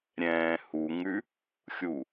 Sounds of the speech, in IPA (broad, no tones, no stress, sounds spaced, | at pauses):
ɾʲ ɛ̃ː h u ŋ ʉ | xʲ u